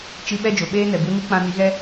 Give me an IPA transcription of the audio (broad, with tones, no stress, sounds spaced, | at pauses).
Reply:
t͡ʃ i˧ ɓ ɛ˦ d͡ʒ o˨ ɓ eː˦ n ɛ˨ b u˧ n i˦ k͡p ã˧ n i˨˦ ɣ ɛ˦